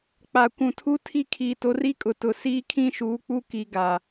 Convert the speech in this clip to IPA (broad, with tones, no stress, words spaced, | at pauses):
k͡pa˨ kʷũ˨tʰu˦tʰi˦˨ kʰiː˨to˨˦ri˦kʼʊ˨ tʊ˨siː˦ kʰĩ˦ ʃuː˨˦k͡pu˦ki˨ ɡaː˨